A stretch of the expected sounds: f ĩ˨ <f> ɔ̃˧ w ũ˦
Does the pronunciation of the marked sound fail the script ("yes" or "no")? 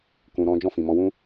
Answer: yes